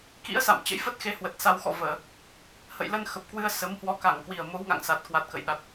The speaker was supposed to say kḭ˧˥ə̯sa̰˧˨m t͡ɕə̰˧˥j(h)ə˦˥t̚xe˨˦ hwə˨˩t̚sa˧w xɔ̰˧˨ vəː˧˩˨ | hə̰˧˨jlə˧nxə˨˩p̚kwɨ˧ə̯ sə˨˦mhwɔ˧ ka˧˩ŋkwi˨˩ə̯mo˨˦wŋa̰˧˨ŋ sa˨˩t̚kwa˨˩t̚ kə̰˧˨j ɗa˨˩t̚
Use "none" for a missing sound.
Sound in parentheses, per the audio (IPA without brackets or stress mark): f